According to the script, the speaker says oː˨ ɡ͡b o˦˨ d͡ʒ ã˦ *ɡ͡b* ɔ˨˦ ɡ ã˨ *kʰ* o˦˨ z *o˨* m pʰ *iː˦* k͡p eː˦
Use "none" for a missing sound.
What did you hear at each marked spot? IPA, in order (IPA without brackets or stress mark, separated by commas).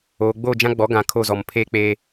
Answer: ɡ͡b, kʰ, ɔ˨, eː˦